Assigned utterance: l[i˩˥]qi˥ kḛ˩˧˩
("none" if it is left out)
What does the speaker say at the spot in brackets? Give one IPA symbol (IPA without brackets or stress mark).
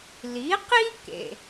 i˩˥